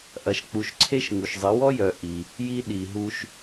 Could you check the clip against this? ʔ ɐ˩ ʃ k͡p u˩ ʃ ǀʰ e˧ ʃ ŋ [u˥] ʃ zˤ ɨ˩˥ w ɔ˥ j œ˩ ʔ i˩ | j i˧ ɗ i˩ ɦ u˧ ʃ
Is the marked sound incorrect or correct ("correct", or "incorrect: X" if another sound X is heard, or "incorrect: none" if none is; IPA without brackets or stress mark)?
incorrect: u˩